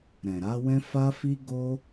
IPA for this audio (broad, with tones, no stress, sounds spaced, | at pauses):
ɾ ɛ̃˨ ɾ a˨˦ w ɛ̃˦ f a˦ f i˦ ɡ o˦